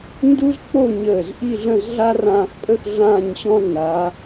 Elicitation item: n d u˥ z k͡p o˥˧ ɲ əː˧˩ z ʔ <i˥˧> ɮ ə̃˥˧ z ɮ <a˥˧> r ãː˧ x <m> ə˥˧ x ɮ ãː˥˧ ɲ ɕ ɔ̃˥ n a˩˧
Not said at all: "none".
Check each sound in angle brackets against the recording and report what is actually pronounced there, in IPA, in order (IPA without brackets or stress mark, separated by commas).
i˥˧, a˥, pʼ